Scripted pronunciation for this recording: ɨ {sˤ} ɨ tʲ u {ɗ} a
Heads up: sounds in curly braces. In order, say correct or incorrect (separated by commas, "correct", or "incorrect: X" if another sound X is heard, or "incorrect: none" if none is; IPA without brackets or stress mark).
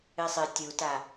correct, incorrect: t